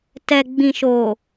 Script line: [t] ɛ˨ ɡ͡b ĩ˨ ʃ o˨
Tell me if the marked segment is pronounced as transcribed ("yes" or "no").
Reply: yes